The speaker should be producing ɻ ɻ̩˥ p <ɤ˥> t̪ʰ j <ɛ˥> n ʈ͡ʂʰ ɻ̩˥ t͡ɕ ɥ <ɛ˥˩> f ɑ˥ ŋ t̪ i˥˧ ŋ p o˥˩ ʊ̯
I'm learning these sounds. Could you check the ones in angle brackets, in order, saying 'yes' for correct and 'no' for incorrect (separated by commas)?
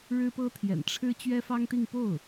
yes, no, no